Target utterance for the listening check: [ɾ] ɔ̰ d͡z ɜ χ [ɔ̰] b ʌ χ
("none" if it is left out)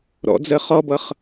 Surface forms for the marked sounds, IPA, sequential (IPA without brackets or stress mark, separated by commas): ɾ, ɔ